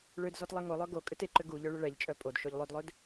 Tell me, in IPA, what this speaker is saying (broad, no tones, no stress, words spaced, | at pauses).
ɭød zɔtlˠeŋolˠœ ɡo kʼʏteǃʏ ɡu ʎœɭʏɭɛʎt͡ʃʼœ pʼodʃoʎ lˠødlˠød